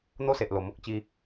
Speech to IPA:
n̪ o˦ s e˨ ʔ l o˨˩ m o˦ k̚ t͡ɕ i˧

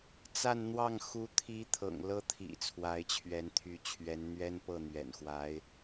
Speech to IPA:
t͡s a˥˧ n n̪ w ɑ˥˩ ŋ x u˧˥ t̪ʰ i˧˥ t̪ʰ ɤ̰˨˩ ŋ l ɤ˥ t̪ʰ ḭ˨˩ t͡sʰ w a˧˥ ɪ̯ t͡ɕʰ ɥ ɛ˧˥ n t̪ʰ y˧˥ t͡ɕʰ ɥ ɛ˧˥ n n̪ ɥ ɛ˥ n p ɤ˥˩ n̪ ɥ ɛ̰˨˩ n x w a˧˥ ɪ̯

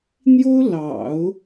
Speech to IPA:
n̪ j o˥ ʊ̯ l ɑ̰˨˩˦ ʊ̯

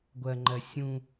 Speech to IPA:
ɡʷ ɜ ŋ͡ǃ ɜ sʲ ũː

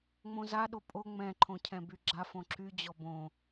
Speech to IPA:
ŋ͡m õ z a ɗ o pʼ o ŋ͡m ɛ̃ ǃʰ õ cʰ ɛ̃ b y ɡ͡ǁ a f õ ǁ y d͡ʑ ɔ b õ

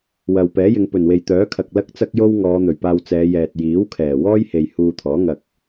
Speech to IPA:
w ɐ˨ w p ɛː˨˥ j ɪ˨˧ ŋ p ɵ˨˩ n w e˨ j t̪ œː˨˥ kʰ ɐ˨ k̚ l ɐ˥ k̚ t͡s ɐ˥ k̚ j o˥ w ŋ ɔː˨˧ n̪ ɵ˨˩ ɥ p aː˧ w t͡s ɛː˨˧ j ɛː˨ t̚ j iː˨˥ w kʰ ɛː˨˩ w ɔː˥ j h e˨ j h uː˧ t̪ʰ ɔː˨˥ ŋ ɐ˧ k̚

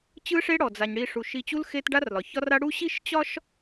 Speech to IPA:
t͡ɕ ɯ˦ ʂ e˦ ɽ ɔ˩ d͡z a˩ ɲ ɽ i˨ ʂ u˩ ʃ i˨ t͡ɕ u˦ l x e˦ t ɖ a˦ r l ɒ˩ ç ɒ˦ r a˦ ɽ u˥ ɕ i˥ ʃ t͡ɕ ɒ˥ ʃ

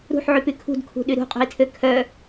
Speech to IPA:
ɾ ṳ ħ ʕ y p y kʰ ṳ d kʰ ṳ ɗ y ɾ ṳ qʼ ṳ i̯ tʰ ø kʰ œ

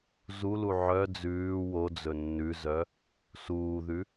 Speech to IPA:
z u l u ʕ œ d͡z ʉː w o d͡z ɵ nː ʉ z œ | s uː ð ʉ

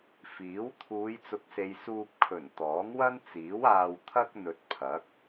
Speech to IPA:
f iː˨˥ w t̪ʰ uː˨˧ j t͡s ʊ˨˥ k̚ s e˨ j s uː˧ p̚ kʰ ɵ˨˩ n t̪ ɔː˨˥ ŋ w ɐ˥ n t͡s iː˨˥ w aː˧ w t̪ʰ ɐ˥ k̚ n̪ ɵ˧ t̚ pʰ ɐ˨˥ k̚

